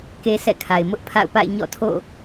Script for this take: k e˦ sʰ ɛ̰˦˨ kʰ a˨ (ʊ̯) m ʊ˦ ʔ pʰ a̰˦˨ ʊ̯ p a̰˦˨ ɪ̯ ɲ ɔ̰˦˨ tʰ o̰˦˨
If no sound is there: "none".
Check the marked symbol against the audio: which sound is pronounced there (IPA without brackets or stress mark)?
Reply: ɪ̯